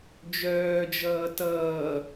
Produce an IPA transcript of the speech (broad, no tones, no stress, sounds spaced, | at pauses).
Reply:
d͡ʒ œː d͡ʒ ʌː t ʌː